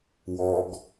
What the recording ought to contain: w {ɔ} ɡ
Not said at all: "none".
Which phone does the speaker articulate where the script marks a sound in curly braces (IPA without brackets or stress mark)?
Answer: ɔ